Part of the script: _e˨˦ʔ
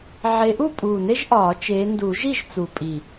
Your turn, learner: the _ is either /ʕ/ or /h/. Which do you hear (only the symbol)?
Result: ʕ